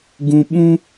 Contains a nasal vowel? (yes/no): yes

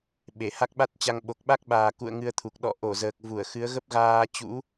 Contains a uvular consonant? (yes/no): no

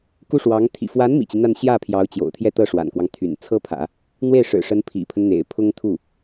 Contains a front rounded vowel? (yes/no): yes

